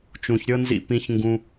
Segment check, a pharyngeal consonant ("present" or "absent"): absent